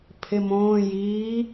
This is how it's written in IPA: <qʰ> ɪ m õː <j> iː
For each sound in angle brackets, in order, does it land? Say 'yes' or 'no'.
no, yes

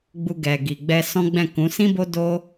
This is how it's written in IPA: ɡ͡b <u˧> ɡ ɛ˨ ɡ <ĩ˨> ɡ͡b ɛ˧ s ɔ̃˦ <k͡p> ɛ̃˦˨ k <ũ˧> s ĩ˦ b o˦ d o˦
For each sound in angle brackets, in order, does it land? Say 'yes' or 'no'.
yes, no, no, no

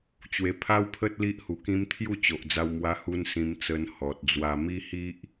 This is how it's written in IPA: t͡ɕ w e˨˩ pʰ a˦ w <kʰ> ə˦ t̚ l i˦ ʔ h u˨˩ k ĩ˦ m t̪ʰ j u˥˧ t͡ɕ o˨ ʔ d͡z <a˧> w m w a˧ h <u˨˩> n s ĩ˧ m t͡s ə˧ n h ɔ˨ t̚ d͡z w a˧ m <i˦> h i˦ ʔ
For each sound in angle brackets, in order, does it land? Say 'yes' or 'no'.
no, yes, no, yes

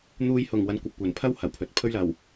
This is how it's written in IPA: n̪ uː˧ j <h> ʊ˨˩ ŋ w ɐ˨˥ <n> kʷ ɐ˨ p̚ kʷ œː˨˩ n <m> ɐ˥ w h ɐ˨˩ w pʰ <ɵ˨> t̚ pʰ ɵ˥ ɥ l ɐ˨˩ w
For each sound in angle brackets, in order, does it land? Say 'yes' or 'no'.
yes, yes, no, yes

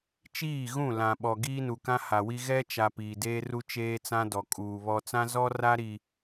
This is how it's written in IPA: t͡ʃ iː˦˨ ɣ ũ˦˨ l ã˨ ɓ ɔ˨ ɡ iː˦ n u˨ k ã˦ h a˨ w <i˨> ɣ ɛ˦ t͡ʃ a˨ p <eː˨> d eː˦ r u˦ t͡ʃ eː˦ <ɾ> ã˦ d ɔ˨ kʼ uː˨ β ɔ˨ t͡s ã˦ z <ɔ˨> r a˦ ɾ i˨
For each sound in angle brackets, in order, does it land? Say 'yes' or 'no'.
no, no, no, no

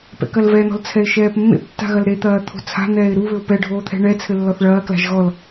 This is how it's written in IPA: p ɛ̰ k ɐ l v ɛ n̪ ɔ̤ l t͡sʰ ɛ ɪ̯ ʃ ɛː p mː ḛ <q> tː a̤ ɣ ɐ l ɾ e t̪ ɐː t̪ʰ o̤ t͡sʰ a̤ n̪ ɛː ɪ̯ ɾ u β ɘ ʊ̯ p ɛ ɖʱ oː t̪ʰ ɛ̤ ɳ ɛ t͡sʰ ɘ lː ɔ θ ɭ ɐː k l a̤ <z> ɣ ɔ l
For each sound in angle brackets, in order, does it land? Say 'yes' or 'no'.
no, no

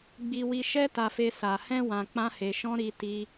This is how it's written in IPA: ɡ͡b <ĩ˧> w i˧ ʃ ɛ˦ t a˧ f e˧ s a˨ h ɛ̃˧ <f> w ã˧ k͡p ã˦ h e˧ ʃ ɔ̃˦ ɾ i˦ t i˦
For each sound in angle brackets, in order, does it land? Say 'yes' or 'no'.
no, no

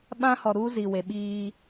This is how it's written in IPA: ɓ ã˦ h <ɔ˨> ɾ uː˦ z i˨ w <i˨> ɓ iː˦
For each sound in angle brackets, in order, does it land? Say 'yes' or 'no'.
yes, no

